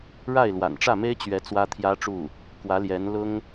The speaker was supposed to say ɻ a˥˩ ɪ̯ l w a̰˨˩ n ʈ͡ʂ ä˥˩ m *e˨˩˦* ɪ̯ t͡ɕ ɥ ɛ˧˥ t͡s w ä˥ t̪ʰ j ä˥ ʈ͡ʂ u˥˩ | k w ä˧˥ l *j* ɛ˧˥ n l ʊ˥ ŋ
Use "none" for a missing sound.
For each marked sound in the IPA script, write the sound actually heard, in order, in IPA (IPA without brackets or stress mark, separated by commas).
e˥, j